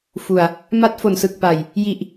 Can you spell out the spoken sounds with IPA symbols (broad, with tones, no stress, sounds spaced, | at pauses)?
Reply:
f u˨˩ a̯ | m a˦˥ t̚ f o˨˩ n s ɯ˨˩ k̚ p a˨˩ j | j i˨˩ ʔ